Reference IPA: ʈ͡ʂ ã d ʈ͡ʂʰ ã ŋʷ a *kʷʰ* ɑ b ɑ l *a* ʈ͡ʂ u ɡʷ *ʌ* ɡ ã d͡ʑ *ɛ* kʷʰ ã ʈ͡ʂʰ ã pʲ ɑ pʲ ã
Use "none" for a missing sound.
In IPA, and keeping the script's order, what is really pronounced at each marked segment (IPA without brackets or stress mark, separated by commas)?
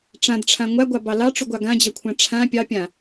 ɡʷ, ɑ, ɑ, ɜ